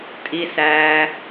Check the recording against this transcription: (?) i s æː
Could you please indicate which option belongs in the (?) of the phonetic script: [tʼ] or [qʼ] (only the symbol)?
tʼ